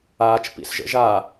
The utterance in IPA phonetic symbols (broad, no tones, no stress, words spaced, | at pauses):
aːt͡ʃpḭsʒə̰ ʒa